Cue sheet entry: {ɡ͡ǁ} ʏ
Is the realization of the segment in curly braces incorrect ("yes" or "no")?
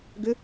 yes